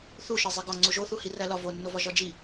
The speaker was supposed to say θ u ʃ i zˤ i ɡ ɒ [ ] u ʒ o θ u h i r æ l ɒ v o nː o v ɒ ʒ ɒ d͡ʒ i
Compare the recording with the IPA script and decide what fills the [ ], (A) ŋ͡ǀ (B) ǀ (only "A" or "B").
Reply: A